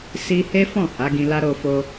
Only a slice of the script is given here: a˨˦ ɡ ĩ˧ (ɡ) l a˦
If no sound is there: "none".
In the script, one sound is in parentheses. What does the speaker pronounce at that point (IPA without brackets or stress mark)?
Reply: none